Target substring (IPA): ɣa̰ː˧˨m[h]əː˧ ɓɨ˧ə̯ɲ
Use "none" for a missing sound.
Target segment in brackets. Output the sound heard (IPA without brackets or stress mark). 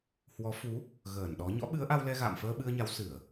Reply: f